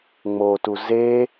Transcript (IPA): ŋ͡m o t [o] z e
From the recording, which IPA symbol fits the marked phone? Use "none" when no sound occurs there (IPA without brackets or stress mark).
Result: u